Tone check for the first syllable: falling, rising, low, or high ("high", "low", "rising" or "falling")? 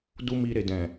high